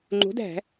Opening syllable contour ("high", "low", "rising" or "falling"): rising